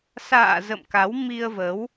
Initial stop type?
plain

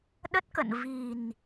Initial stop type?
implosive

